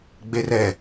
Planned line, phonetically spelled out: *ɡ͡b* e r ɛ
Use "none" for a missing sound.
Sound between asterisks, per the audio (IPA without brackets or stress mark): ɡ͡b